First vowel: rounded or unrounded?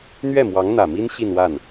unrounded